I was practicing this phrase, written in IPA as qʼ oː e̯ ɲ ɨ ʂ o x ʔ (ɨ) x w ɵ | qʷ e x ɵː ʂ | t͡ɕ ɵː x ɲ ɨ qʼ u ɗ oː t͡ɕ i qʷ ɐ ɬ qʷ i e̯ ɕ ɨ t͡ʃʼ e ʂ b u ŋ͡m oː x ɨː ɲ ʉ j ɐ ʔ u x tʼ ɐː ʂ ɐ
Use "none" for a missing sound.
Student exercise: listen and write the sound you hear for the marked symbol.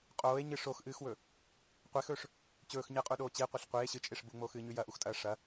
ɨː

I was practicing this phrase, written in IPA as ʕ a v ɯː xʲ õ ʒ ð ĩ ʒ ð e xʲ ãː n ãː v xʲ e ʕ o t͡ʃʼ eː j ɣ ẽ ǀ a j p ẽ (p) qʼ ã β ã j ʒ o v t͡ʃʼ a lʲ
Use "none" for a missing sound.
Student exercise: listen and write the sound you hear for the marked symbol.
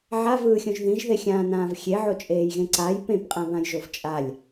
p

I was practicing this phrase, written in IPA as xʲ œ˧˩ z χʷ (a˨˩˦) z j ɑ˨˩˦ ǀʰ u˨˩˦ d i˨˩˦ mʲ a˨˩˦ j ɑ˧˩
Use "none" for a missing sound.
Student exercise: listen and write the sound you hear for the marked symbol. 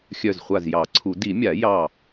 a˧˩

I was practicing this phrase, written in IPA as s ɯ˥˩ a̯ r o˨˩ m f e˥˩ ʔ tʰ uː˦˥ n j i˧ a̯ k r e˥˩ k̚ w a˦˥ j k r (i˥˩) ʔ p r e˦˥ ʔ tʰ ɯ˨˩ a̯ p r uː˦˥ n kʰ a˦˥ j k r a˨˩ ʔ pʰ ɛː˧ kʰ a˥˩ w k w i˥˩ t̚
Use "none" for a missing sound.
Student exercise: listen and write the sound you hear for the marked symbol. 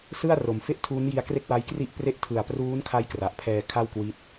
i˥˩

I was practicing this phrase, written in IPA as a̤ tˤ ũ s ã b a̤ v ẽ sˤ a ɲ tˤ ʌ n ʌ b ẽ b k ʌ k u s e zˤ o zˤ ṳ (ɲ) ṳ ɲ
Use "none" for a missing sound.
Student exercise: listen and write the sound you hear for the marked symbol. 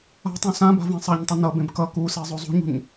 ɲ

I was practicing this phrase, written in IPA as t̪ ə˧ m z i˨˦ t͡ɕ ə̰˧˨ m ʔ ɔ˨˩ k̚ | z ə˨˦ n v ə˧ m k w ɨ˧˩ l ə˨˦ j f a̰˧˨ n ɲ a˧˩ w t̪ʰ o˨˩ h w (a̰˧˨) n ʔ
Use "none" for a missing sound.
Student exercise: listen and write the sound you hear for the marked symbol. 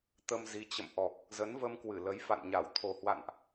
a̰˧˨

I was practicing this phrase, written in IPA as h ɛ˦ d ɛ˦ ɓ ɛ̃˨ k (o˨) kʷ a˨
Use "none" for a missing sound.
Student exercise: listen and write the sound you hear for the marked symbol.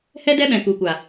u˨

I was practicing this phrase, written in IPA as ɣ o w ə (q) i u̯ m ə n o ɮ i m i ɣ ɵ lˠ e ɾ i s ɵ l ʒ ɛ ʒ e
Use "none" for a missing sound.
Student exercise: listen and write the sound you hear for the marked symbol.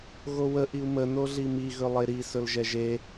ʔ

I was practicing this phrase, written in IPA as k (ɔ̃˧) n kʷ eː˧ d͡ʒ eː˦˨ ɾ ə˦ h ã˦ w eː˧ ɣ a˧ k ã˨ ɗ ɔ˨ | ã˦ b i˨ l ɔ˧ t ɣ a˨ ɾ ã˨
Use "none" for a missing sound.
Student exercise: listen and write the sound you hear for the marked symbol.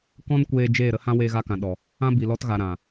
ɔ̃˦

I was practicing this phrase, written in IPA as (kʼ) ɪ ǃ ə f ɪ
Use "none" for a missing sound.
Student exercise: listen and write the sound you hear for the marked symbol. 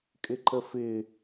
kʼ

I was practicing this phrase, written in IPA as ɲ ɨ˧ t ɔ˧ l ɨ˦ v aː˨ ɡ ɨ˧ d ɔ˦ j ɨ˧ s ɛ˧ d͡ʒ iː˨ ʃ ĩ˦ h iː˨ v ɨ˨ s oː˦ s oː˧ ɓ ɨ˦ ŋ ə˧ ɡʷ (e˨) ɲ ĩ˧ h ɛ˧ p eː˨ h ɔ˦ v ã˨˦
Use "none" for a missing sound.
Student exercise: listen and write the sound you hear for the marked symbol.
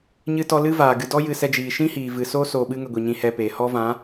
i˨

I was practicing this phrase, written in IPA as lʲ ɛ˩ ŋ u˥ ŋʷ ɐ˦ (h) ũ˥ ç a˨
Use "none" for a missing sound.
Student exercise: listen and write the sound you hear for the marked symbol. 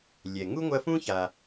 f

